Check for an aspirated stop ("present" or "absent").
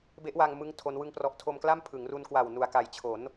present